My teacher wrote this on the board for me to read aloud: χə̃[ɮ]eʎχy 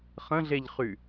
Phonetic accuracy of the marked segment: correct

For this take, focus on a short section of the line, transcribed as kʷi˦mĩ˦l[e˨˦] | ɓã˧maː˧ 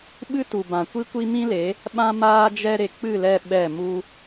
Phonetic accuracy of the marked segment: correct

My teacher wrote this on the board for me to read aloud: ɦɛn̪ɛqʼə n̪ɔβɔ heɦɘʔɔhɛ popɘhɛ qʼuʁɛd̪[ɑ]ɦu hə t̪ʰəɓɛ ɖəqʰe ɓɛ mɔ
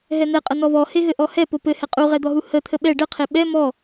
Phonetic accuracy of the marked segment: incorrect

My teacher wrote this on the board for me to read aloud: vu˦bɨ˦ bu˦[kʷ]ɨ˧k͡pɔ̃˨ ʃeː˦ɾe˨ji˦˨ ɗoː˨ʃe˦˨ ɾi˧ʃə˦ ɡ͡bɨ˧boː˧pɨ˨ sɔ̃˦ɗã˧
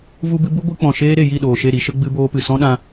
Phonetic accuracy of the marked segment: incorrect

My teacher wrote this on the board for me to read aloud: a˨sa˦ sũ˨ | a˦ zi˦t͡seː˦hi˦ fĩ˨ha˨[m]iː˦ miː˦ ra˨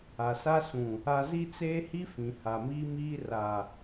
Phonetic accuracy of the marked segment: correct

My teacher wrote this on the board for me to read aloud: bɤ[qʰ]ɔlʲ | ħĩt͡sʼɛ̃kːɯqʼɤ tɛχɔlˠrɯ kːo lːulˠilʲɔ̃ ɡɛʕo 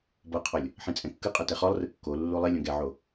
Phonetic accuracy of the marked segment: correct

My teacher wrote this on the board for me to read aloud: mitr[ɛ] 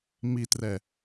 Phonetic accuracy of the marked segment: correct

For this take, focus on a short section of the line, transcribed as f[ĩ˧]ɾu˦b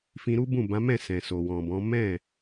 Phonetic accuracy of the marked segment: correct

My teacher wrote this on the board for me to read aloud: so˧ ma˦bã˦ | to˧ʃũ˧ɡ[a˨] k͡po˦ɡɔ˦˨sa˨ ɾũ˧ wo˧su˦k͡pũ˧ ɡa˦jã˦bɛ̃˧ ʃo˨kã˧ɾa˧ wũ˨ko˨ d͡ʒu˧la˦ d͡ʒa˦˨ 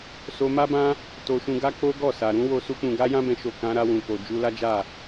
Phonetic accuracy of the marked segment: incorrect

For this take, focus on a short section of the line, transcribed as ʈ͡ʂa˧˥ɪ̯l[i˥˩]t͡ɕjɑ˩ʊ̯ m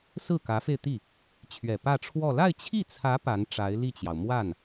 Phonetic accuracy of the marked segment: correct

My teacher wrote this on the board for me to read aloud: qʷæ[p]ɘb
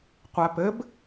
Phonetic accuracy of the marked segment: correct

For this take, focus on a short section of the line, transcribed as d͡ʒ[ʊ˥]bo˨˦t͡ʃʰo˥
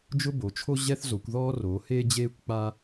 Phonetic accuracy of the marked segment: correct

